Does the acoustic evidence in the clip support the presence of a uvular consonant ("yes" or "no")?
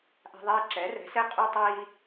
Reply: yes